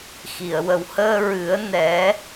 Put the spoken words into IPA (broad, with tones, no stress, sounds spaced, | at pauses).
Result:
x i˨˩˨ ə̯ w ə˨˩ w h əː˧ ɹ ɨ˨˩˦ ə̯ n ɛ˨˩˦